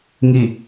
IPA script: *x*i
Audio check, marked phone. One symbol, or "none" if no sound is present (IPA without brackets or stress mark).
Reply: ŋ